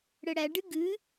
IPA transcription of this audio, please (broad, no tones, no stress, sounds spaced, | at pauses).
ɽ ə ɽ æ ɖ ɨ ɡ ɨ